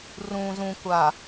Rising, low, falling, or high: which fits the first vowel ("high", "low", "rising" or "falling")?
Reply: low